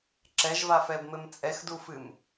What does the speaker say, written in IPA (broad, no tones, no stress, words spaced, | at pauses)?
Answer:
ǁɛʒvafɛbmɘm t͡sʼɛxdufɨm